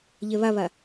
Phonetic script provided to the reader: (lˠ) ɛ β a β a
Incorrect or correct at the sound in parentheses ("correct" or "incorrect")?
incorrect